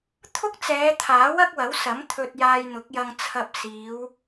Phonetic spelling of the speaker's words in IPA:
t̪ʰ ʊ˥ k̚ t͡s ɛː˨˧ t̪ʰ aː˨˥ w ɐ˥ k̚ w ɐ˨˥ w s ɐ˨˥ m t̪ʰ ɵ˧ t̚ j aː˧ j n̪ ʊ˨˥ k̚ j ɐ˧ ŋ t͡sʰ ɐ˧ p̚ s iː˨˧ w

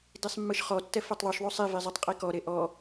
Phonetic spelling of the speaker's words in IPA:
d i sˤ mː ɯ ʃ χ ɔ tː ɛ f e tˤ ðˤ u ʃ ðˤ u sˤ i v i zˤ i tˤ qʼ i k ɔ ɾ e ʔ ɔ

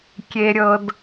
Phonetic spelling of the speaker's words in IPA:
kʲ e˧ ɾʲ ɤ˧ d

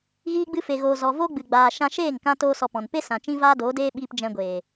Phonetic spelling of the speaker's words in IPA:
ɣ iː˧ ɡ͡b ɨ˧ f e˨ ɣ oː˨ z ɔ˨ v o˦ ɡ͡b ɨ˨ ɡ͡b aː˨ ʃ ã˧ ʃ eː˦˨ ŋ k ã˧ t oː˦ s ɔ˧ p ɔ̃˨ n p e˦ s ã˨ t͡ʃ ĩ˦ v aː˦ d oː˨˦ d eː˦ ɓ iː˧ p d͡ʒ ɛ̃˧ ɡʷ eː˨

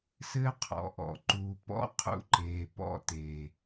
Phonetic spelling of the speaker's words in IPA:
s ɘː˦ qʰ ɔ̰˨ ʔ ɔ̰˨ ǃ uː˨ p ɔ̰˦ qʰ ṵ˧ ǃ eː˨ p ɔ̰˧ t e˨

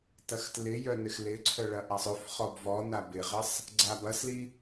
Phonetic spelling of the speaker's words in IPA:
t ɐ x t l ɪ j œ n ɪ x l ɪ ǀʰ œ ɭ ɐ ʔ a sˤ ø f χ ɔ b v ɔ n a b ɪ ʁ ɪ sˤ | ɡ͡ǀ a b ɐ s l i

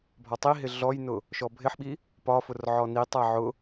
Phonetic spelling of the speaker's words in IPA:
bʱ ɒ tˤ i ɦ ɪ ɮ ɔ j n ʊ | ʃ ɔ bʱ ɪ ħ ɓ i | p ɒ f ʊ r ʕ ɔ n i tˤ æ ʕ ʊ

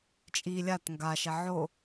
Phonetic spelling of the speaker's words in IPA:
t͡ʃʼ i lʲ a t ŋ ɡ a ʃ ɛ ʕ o

